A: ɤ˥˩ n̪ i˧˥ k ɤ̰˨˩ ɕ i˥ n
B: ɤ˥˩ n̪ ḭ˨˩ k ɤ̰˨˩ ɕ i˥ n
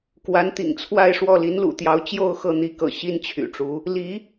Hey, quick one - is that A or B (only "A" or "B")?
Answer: A